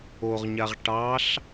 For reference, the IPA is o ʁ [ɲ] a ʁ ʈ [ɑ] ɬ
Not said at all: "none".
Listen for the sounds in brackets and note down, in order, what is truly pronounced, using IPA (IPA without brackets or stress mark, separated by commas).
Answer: ɲ, ɑ